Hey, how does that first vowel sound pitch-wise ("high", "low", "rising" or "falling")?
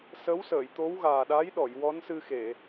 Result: rising